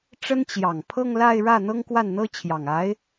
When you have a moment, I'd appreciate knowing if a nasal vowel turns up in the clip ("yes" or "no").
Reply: no